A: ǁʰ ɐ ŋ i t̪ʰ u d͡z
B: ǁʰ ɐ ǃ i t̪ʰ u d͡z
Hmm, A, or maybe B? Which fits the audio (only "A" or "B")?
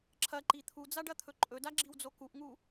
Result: B